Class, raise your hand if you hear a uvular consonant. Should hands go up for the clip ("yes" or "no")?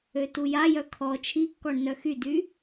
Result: no